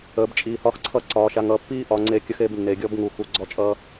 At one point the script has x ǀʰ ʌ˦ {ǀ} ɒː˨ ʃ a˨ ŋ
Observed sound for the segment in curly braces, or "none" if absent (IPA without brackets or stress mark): ǀ